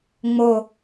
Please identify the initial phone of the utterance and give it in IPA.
ŋ͡m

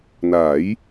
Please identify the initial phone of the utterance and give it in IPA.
n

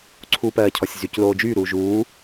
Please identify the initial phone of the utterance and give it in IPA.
ǀʰ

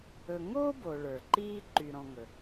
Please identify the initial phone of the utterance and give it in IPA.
ɵ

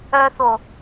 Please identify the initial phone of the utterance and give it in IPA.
œ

